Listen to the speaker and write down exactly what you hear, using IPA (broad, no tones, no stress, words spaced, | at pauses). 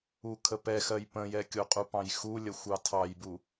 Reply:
ukʰəpɛxɜj pə̃jɛkʲoqʼu pɑ̃jxulʲə xʷɑtʰɑjbu